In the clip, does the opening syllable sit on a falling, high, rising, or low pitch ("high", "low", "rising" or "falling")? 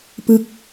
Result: falling